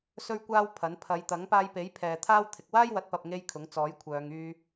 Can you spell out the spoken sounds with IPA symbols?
s ɵ˥ ɥ kʷ aː˥ w pʰ ɐ˨˥ n pʰ ɐ˨˧ j t̪ ɐ˨˥ ŋ p aː˧ j p e˨˥ j pʰ ɛː˨ t̪ʰ aː˥ w t̪ʰ ɪ˨ k̚ w aː˥ j w ɐ˨˥ t̚ p ɐ˨ p̚ ŋ e˧ j kʰ ʊ˨˥ ŋ t͡s ɔː˨˥ j kʷʰ œː˨˧ ŋ yː˧

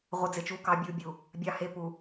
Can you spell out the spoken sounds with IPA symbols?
ʁʷ ɪ˨ d͡z ɪ˨ t͡ʃ u˨˦ k ɑ˨ bʲ u˨ bʲ u˨ | bʲ ɑ˨ h e˨ p u˨

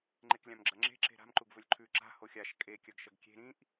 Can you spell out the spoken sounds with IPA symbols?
ŋ͡ǃ e k lʲ ã m ɡ͡ǁ ɐ ŋ͡ǁ e̤ ǁ e̤ ɾ a̤ m ǃ u ɡ v ɵ lʲ ǃʰ ʉ ǁ a̤ h o xʲ a ʃ kʼ e kʲ ɐ ɡ ʃ ɐ ɡ kʲ e̤ ɾ ĩ ʔ

